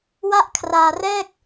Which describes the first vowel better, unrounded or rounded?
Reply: unrounded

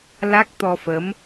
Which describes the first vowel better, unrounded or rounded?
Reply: unrounded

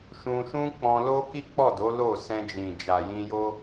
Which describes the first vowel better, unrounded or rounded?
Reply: rounded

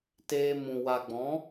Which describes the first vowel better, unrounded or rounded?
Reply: unrounded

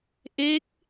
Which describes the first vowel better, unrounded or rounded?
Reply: unrounded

